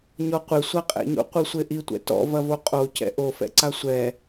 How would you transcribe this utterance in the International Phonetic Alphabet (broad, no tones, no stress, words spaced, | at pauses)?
ɲɔqʷe sʷaqʼɛ̰ɲo̰ qʷɨsʷeʔitʷɛ̰ tɔ̰vɐvo qʼocɛ̰ ʔofɛ̰ ǀasʷɛ